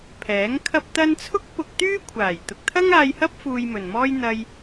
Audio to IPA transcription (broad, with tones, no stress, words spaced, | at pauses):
pʰɛː˨˥ŋkʰɐ˥p̚t̪ɐ˥n t͡sʰʊ˥k̚pʊ˧k̚ t̪yː˥kʷʰaː˨˩j t̪ʊ˨k̚t̪ʰɐ˥ŋaː˧jhɐ˥p̚ fuː˧jmɵ˨nmɔː˥j n̪ɐ˧j